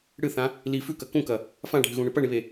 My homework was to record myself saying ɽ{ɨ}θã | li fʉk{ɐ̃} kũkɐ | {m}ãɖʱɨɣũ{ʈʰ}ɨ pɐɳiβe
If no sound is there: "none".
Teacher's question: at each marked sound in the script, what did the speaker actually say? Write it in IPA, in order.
ɨ, ɐ, f, ɳ

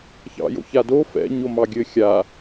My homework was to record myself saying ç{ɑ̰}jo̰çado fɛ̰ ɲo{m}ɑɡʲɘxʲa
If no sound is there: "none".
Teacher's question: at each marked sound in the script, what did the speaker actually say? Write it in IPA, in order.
ɑ̰, m

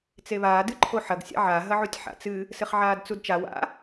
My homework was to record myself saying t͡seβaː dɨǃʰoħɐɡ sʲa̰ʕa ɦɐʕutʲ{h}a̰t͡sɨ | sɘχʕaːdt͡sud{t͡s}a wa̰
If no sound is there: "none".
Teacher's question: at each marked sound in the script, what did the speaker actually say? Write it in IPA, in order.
ħ, t͡ʃ

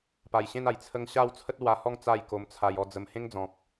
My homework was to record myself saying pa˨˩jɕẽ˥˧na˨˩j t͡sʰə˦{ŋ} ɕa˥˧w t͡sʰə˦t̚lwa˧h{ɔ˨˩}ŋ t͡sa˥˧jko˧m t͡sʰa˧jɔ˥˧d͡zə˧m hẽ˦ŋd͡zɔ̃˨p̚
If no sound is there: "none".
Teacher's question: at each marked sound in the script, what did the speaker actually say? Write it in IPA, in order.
ŋ, ɔ˥˧

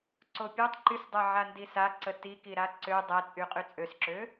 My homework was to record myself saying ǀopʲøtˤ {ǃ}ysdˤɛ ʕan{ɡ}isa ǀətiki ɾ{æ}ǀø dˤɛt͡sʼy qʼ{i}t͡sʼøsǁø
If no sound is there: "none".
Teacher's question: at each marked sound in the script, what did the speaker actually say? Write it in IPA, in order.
ǃ, d, a, y

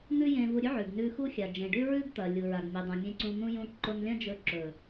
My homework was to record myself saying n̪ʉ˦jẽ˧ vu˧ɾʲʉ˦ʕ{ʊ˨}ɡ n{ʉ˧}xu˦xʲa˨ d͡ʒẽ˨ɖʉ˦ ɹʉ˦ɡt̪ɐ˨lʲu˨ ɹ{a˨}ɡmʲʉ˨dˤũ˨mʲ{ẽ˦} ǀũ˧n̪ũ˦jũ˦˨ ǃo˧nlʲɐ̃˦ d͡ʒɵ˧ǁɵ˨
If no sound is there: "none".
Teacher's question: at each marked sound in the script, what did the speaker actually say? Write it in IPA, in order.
ʉ˨, ʉ˧, a˨, ẽ˧

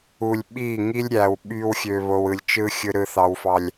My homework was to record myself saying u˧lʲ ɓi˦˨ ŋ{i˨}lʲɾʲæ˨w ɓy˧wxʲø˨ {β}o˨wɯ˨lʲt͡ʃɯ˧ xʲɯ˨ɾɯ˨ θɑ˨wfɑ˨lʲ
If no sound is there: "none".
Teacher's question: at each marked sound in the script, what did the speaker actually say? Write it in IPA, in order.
i˦, β

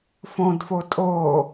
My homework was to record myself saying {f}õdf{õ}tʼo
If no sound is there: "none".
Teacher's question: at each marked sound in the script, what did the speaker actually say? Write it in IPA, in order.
f, o

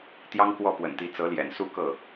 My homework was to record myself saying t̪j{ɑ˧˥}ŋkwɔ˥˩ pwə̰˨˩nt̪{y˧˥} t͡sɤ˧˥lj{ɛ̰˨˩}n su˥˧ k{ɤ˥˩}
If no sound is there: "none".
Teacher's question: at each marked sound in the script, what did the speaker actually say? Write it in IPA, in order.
ɑ˥, i˧˥, ɛ̰˨˩, ɤ˥˩

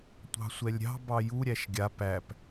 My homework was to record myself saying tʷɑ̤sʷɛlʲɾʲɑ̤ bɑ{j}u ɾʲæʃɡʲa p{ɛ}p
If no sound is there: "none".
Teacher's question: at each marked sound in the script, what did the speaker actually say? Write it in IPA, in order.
j, æ

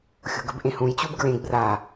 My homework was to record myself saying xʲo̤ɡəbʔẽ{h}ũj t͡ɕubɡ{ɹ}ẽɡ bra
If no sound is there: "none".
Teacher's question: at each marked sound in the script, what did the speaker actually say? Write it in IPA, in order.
h, ɹ

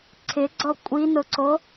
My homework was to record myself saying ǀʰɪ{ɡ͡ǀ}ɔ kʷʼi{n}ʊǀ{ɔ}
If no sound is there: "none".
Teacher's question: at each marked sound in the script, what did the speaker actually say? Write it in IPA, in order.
ɡ͡ǀ, n, o

